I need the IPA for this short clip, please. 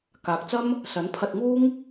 k aː˨ k̚ t͡s ɐ˥ m | s ɐ˨˥ n pʰ ɐ˧ t̚ ŋ uː˥ ŋ

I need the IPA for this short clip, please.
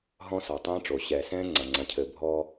ɦ ɔ̃˦ s ɔ˨ tˤ ɛ̃ː˦ ʈ͡ʂ o˨ ɕ ɛ˨ s ɛ̃ː˦ ŋ͡ǀ ɐ˨ ŋ͡ǀ ɐ̃˨ cʰ ɘ˨ bʱ ɔː˦

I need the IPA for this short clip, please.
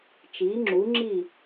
t͡ʃ iː˩˥ ŋ͡ǁ u˩˥ ŋ͡ǁ iː˥˩

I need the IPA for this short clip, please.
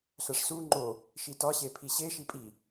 ɬ æ ʂ s u ŋ͡ǃ o | ʃ i t ɒ ɕ e pʰ i ɕ e ʃ i pʼ i

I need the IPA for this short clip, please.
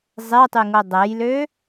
zˤ e tˤ y ŋ o dˤ ɛ j l ø

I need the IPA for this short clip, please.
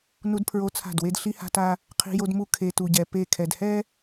n u˦ d pʰ ɹ o˦ t͡sʰ a̤˦˨ d w e˦ d ɬ i˦ h a̤˦ t a˦ | qʰ i̤˦ j o˦ d m u˦ kʰ e˨ t u˨ ɟ ɛ˨ p e˦˨ kʰ ɛ˨ d h ɛ˦

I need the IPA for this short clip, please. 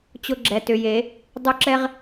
t͡ɕ ʊ˧ ɡ͡ǁ ɛ˩˧ t ʏ˩˧ j e˩˧ | dˤ ʏ˥˧ ǁ ɛ˥ ʁ

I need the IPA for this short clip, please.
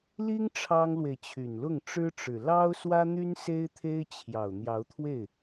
l i˥ ŋ ʈ͡ʂʰ ɑ˥ ŋ l w e˨ ɪ̯ t͡ɕʰ y˨˩ n l ʊ˥˩ ŋ ʈ͡ʂ ɻ̩˥ ʈ͡ʂ ɻ̩˨˩ l ɑ˥ ʊ̯ s w ä˥ n̪ y˥ n s e˥ ɪ̯ t̪ʰ e˥ ɪ̯ t͡ɕʰ j ɑ˨˩ ʊ̯ n̪ j ɑ˧˥ ʊ̯ t̪ʰ w e˥˩ ɪ̯

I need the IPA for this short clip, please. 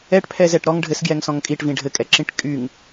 ɛ ʈ pʰ ɛ z ɛ ʈ ɾ ɔ ŋ ɖʱ ɘ s ɡ j ɛ ŋ s ɔ̃ ŋ kʼ i ʈ v ĩ ɖʱ ɘ kʼ ɛ ǁ ĩ ʈ kʼ y ŋ

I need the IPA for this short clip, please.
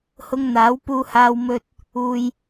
h ʊ˧ ŋ n̪ aː˨˥ w p uː˧ h aː˧ w m ɵ˧ t̚ | uː˧ j

